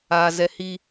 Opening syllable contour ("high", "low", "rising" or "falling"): high